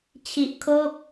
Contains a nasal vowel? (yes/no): no